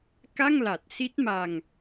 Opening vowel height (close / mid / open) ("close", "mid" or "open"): open